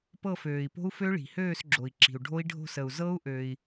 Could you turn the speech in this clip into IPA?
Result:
p ɤ˦˨ f øː˩ i̯ p o̤˦˥ u̯ f ø˦˥ ɭ i̤˩ h øː˦˨ s ɡ͡ǁ o˩ i̯ ǁ i̤˩ u̯ ɖʱ o˦˥ i̯ ɖʱ o̤˦˨ s ə˩ u̯ z ɤ˦˥ u̯ ʔ ø˩ i̯

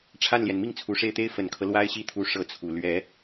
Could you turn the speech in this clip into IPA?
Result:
ʈ͡ʂʰ a˥˩ n l j ɛ˩ n m i˥˩ ŋ t͡sʰ u˨˩ ʂ e˥˩ ɪ̯ t̪ e˥ ɪ̯ f ə˨˩ n kʰ ɤ˦ l w a˥ ɪ̯ ɕ i˥˩ t̪ʰ u˧˥ ʂ ɤ˥ t͡sʰ u˨˩ l ɥ ɛ˧˥

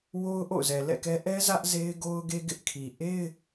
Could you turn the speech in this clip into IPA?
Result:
w o˦ ʊ̯ ʔ o̰˦˨ ʊ̯ z ɛ˨ l ɛ̰˦˨ k ɛ˦ ʔ ɛ˦ z ä˦ ʔ z e˦ ɪ̯ ɡ o˦ ʊ̯ ɡ e˦ ɡ ɪ˦ ʔ kʰ i˨ ʔ e˦ ɪ̯

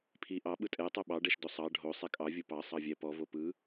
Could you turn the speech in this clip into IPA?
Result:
pʰ i ʔ ɑ ɓ ɯ tʼ ɛ tˤ o ɓ ɑ ɖ ɛ ʃ d o sˤ ɑ ɖʱ o sˤ ɛ kʼ ɑ vʲ ɯ p ɑ sˤ ɑ vʲ ɛ p ɔ v o p ɯ

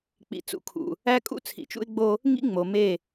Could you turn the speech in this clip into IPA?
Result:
k͡p ḭ˨ t͡s ṵ˨ kʰ ṵ˨ | æ˦ kʼ ṵ˦ t͡sʰ ḭ˨ t͡ʃ ṵ˦ ɪ̯ ɡ͡b o˦ | ŋ ḭ˦ ŋ͡m o˨ m e˦˨

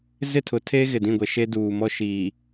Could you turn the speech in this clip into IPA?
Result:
z ɪ˦˨ tʰ ʊ˨ tʰ eː˦ ɣ ɪ˨ d ĩ˦˨ ɡʷ ɛ˨ ʃ e˦ d uː˨ m ɔ˦ ʃ iː˨

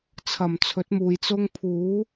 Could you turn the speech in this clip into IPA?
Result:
t͡sʰ ɐ˨˩ m t͡sʰ ɵ˨˥ t̚ m uː˨ j t͡s ʊ˥ ŋ pʰ uː˨˥

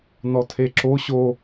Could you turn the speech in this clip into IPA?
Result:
n ɔ tʰ e ǁ o ɕ o

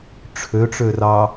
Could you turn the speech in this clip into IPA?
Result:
ʈ͡ʂʰ ø ʈ͡ʂ ø r ɑ

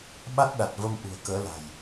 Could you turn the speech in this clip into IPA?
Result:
ɓ a˦˥ t̚ ɗ a˨˩ t̚ v ə˧ m ʔ ṳ˨˩ ə̯ k əː˨˦ l a̤˨˩ j

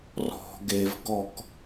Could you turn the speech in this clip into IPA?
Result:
r ɔ̤ ɡ e v ɡ ɔ k

